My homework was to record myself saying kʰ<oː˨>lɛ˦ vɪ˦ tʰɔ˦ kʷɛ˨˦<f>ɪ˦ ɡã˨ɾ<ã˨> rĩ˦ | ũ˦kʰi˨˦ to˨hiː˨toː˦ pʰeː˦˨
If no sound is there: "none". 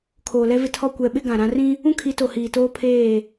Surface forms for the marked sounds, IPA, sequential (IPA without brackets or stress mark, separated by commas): oː˨, ɓ, ã˦